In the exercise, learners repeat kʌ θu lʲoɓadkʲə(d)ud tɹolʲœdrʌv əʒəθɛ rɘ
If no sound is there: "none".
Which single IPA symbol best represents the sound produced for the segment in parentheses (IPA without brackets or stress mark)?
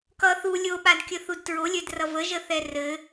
θ